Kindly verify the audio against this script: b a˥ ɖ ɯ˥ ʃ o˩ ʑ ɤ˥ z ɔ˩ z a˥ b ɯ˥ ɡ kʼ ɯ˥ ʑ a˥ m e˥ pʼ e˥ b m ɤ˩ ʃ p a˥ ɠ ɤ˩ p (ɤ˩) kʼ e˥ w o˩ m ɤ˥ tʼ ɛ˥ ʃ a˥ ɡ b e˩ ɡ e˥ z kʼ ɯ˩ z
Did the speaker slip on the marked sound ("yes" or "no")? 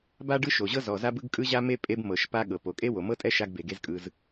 yes